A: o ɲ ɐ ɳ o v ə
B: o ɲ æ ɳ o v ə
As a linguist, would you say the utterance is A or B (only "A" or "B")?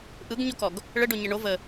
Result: A